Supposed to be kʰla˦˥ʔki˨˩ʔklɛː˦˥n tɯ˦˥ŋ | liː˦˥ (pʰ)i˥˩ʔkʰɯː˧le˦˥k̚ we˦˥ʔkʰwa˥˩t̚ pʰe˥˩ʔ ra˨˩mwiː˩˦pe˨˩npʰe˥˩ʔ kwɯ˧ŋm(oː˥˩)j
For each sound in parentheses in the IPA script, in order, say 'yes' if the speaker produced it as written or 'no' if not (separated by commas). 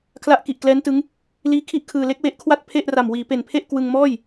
no, no